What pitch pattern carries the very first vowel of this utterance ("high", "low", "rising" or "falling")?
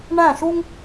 falling